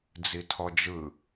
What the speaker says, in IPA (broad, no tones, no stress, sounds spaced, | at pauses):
d͡z i tʰ ɔ d͡ʒ ɯ